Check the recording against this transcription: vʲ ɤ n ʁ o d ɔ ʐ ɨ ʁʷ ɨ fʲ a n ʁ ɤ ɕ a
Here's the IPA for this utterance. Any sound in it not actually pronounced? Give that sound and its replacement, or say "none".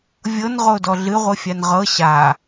ʐ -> ɮ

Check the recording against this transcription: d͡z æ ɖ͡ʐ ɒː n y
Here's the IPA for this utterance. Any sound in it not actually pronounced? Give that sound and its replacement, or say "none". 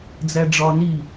y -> i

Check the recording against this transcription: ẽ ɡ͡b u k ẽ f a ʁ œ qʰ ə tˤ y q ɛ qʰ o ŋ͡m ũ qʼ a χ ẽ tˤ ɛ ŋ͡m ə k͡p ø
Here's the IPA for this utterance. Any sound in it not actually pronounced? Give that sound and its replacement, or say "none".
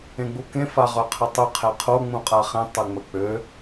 q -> qʰ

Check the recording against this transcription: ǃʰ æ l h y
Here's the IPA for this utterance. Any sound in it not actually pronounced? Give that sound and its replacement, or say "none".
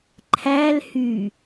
none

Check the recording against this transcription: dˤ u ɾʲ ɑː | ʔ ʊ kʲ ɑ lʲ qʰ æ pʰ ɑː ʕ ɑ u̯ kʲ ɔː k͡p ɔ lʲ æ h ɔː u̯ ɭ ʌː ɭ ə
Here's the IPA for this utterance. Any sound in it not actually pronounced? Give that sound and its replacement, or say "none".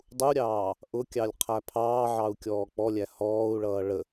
none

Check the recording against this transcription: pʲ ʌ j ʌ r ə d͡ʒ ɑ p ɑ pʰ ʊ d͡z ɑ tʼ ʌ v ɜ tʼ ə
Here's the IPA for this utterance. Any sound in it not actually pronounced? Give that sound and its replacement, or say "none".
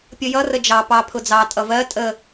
none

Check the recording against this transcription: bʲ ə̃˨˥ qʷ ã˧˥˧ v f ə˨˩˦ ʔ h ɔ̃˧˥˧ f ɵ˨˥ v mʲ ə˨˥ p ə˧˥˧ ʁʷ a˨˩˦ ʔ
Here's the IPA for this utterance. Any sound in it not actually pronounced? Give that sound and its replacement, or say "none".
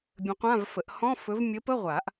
none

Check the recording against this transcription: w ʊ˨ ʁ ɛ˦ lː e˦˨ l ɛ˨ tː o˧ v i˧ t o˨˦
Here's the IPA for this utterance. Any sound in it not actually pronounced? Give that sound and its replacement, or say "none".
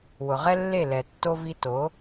none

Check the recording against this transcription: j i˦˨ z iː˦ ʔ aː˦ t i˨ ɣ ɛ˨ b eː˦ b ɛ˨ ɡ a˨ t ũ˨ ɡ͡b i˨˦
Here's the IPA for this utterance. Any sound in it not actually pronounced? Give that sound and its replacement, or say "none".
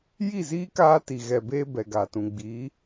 ʔ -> k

